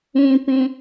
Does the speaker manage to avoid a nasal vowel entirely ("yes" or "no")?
no